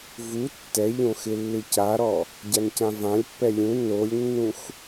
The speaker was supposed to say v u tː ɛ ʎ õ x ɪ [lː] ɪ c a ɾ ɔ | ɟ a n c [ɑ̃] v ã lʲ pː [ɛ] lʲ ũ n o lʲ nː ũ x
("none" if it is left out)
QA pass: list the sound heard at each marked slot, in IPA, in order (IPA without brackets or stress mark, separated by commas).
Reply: lː, ã, ɛ